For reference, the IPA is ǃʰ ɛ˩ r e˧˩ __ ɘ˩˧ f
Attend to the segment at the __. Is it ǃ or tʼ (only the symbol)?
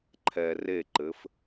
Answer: ǃ